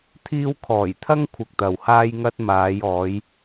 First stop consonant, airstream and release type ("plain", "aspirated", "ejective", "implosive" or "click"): aspirated